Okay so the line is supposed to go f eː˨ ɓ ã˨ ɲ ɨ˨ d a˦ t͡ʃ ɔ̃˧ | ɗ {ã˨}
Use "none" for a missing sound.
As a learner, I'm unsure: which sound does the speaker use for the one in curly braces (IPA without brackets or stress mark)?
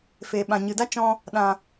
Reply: ã˨